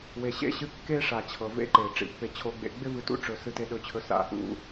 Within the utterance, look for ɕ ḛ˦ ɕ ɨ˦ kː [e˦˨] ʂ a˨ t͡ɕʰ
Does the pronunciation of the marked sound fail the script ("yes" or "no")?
yes